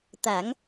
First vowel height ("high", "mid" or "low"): low